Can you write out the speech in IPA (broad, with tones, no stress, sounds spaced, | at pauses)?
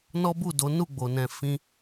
n ɔ˦ b u˦˨ d o˨˦ n u˦˨ ɡ͡b o˨ n ɛ̃˨ f ĩ˧